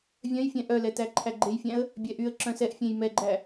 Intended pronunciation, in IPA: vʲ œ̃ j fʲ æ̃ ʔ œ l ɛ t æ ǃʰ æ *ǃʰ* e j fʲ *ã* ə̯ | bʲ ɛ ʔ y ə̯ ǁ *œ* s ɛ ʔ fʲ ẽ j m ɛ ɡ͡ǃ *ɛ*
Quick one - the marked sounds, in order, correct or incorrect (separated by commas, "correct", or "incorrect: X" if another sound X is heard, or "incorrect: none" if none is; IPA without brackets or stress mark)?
incorrect: ɡ͡ǃ, incorrect: æ̃, incorrect: œ̃, incorrect: æ